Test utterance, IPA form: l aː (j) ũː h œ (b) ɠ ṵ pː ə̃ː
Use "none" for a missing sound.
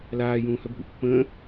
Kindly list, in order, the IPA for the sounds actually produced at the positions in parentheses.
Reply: j, b

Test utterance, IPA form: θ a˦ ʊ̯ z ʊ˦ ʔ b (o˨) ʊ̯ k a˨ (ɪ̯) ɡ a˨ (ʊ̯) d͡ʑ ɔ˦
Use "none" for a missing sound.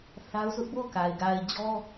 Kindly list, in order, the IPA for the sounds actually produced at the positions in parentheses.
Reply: o˦˨, ɪ̯, ɪ̯

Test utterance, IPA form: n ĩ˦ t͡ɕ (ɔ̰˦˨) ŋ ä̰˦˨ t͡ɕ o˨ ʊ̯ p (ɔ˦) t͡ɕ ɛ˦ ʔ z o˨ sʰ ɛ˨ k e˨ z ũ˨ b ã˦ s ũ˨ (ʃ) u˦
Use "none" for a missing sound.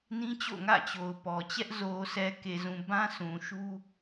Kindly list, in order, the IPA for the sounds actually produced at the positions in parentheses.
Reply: o̰˦˨, ɔ˨, ʃ

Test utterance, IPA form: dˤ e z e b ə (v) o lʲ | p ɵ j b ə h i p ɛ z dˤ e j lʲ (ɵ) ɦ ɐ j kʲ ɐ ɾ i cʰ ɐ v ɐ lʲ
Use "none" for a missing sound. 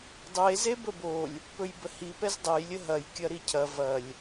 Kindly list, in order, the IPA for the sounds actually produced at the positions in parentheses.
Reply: b, ə

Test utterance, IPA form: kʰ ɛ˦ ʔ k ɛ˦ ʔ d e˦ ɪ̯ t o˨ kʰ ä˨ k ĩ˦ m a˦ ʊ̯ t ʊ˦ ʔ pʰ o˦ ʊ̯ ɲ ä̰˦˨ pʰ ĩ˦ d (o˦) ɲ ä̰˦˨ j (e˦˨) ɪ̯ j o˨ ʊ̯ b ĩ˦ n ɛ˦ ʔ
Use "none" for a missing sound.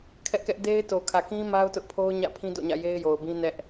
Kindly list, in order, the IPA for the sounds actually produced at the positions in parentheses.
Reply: o̰˦˨, e˦

